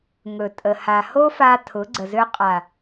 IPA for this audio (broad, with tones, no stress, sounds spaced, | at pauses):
ŋ ɵ˨ tʼ ə˨ h a˨ h o˦ f a˧ tʰ ʊ˨˦ ɡ͡ǀ ə˨ z ø˧ qʼ a˨